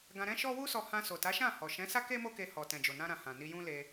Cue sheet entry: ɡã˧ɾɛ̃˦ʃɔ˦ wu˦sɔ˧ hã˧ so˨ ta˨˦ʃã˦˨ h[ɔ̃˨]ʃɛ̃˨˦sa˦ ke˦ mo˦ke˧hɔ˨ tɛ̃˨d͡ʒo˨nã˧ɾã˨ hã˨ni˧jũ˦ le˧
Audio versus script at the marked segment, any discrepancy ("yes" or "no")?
yes